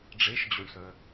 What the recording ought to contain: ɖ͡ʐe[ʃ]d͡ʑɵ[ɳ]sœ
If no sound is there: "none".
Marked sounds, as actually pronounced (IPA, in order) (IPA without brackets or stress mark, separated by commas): ʃ, ɳ